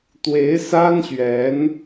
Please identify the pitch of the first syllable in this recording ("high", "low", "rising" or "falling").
rising